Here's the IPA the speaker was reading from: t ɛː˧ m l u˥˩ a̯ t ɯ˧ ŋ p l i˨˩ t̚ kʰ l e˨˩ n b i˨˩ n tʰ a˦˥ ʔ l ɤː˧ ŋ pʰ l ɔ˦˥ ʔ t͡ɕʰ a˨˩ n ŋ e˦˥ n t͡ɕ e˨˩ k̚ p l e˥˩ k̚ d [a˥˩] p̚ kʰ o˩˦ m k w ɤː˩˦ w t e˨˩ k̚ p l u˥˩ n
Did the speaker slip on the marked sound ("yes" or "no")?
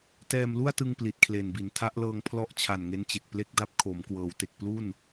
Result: no